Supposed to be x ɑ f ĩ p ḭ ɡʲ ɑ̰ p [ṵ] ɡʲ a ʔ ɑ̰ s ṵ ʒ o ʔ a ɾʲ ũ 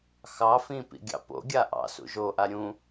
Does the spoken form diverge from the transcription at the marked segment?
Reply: yes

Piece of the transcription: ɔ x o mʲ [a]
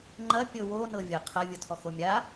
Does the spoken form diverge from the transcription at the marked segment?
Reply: no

